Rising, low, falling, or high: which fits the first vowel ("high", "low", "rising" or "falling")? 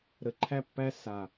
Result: low